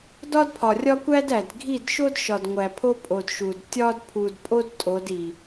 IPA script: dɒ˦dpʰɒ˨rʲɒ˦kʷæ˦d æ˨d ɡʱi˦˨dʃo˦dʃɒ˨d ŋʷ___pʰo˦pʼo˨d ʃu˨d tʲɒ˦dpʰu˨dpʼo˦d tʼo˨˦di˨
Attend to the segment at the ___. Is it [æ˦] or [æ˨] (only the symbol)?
æ˨